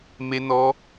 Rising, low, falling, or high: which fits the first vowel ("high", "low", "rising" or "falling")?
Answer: high